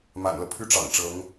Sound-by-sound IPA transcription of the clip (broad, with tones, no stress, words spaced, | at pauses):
ma̰˨˩nlɤ˦pʰy˥˩ ʈ͡ʂɑ̰˨˩ŋʈ͡ʂɤ˧˥ŋ